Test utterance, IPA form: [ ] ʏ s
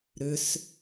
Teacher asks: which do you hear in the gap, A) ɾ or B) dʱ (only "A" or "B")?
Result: A